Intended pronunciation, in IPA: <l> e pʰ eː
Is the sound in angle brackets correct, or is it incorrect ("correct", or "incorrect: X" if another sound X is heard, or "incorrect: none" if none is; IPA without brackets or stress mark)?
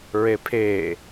incorrect: ɹ